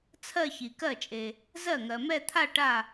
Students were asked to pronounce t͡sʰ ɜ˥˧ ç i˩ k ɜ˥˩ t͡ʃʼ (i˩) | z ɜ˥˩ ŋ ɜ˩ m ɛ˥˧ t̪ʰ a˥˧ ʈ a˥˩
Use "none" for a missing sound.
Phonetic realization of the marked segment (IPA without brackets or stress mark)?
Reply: e˩